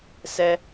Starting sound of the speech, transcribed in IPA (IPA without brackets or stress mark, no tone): s